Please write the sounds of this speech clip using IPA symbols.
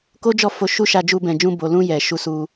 k o˦ d͡ʒ ɔ˦˨ f o˧ ʃ u˦ ʃ a˧ d͡ʒ u˧ b ɛ̃˨ d͡ʒ ũ˧ b o˨ l ũ˧ j ɛ˨ ʃ u˧ s u˧

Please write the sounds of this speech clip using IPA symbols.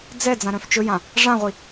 d͡z ɛ d͡z ã ɾ œ̃ f t͡ʃ ɵ j ã | ʐ ã ʁʷ i

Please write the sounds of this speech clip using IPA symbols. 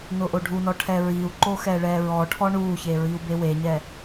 n ʊ ʔ o ɖʱ u n ɔ ʈʰ ɛ ɹ i u̯ ǃ o x ɛ ɭ ɛ ɹ ɔ ʈʰ ɔ ɳ u ç e ɹ i u̯ b e w e ɲ ɛ

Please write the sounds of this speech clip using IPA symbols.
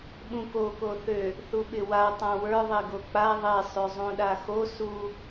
ɓ ũ k o k o θ ø | θ u ɓ ɪ w a tˤ ã w ə˞ ðˤ e ɡ o k͡p a ðˤ e sˤ ø zˤ ũ ɗ a x o s u

